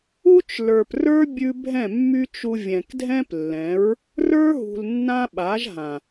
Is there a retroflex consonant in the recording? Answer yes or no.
no